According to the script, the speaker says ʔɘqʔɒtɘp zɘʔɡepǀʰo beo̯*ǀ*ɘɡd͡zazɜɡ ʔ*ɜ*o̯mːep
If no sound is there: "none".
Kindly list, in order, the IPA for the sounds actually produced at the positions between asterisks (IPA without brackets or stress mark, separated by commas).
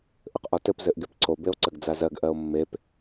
ǀ, ɜ